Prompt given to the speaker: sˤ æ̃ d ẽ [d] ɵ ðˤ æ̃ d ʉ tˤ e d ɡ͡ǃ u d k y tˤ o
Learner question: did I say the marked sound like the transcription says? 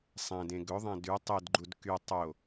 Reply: no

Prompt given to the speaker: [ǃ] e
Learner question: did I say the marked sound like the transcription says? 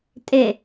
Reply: no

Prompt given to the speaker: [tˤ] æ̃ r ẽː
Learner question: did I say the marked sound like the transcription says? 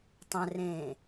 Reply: yes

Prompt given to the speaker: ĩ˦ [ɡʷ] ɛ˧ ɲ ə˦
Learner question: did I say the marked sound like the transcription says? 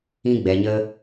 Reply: no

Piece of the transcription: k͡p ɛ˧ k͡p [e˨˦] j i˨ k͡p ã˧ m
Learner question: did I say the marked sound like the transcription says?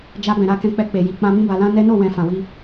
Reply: no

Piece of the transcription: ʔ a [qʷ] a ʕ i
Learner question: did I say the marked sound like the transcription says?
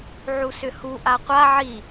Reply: yes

